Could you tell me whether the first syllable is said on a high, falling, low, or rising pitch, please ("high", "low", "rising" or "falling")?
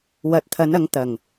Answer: low